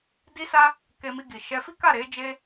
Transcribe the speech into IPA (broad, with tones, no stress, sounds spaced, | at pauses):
d i˦ s a˦ | k e˧ m i˧ ɡ i˨ ʃ ɛ˧ f i˦ k a˦˨ ɾ e˨˦ d͡ʒ e˦